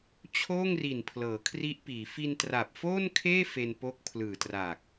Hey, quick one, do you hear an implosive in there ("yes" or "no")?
no